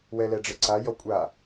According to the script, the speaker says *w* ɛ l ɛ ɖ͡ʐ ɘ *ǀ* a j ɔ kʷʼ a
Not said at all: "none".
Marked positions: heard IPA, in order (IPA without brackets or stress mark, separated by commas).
w, ǀ